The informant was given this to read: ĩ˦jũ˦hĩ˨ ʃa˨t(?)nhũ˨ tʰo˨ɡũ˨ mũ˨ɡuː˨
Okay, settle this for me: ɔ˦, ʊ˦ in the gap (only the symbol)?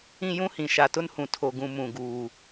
ʊ˦